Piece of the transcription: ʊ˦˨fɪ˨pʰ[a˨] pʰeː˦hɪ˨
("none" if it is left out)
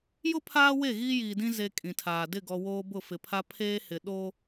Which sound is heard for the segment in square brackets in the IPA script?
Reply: a˦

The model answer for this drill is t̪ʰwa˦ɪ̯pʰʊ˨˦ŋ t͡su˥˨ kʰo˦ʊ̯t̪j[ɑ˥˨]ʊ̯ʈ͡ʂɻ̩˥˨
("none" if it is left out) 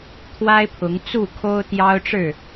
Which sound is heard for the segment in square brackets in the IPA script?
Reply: ɑ˦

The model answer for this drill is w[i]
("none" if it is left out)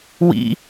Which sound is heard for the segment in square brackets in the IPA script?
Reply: ḭ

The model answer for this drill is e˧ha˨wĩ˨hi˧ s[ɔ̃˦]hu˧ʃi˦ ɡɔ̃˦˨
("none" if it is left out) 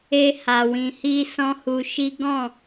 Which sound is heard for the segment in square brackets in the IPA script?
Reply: ɔ̃˦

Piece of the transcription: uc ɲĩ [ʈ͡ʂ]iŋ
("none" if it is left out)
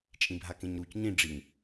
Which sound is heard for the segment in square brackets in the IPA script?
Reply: ɖ͡ʐ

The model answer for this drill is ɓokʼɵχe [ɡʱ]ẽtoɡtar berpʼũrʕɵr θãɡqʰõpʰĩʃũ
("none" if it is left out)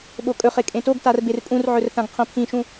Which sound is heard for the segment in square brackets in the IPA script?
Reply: kʼ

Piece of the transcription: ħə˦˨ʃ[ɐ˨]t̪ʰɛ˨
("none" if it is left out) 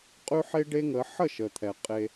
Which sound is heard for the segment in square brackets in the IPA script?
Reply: ə˨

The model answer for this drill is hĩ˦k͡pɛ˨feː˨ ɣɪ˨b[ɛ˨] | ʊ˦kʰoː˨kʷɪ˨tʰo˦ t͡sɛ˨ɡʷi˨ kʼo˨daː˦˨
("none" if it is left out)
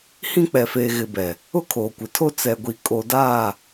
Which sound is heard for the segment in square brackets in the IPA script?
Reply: ɛ˨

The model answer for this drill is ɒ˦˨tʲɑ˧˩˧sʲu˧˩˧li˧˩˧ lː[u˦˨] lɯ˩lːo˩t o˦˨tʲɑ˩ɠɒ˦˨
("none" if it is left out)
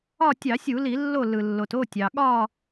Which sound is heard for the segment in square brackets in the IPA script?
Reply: o˦˨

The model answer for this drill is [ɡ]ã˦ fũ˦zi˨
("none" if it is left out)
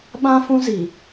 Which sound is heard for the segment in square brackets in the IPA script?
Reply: ɓ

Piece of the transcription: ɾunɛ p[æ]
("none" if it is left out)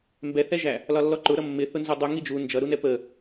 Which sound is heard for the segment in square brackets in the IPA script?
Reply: ə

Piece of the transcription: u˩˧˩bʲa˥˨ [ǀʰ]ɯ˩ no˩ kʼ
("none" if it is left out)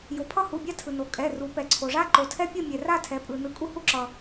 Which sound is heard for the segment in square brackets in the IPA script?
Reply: tʰ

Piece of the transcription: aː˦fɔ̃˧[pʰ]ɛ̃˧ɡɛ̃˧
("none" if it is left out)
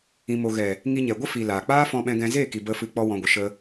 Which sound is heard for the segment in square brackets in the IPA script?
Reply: ɓ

